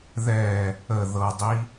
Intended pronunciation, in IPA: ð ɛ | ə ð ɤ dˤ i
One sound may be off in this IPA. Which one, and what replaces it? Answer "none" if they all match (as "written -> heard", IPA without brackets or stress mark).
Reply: none